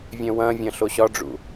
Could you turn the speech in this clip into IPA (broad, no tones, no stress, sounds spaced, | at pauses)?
vʲ œ̃ w ɐ̃ vʲ ɐ̃ ɬ o ɕ ɒ ɖ͡ʐ ṵ